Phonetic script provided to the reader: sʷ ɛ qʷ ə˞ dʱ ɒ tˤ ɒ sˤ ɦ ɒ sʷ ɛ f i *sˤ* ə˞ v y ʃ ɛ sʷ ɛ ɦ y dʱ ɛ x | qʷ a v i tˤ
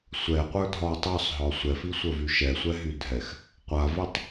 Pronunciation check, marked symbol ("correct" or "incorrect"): incorrect